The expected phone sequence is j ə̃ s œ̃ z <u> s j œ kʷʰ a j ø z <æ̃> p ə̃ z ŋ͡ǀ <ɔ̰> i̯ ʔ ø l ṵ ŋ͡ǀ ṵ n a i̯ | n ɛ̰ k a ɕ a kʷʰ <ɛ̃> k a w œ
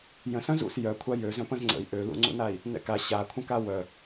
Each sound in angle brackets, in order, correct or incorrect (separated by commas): incorrect, incorrect, incorrect, incorrect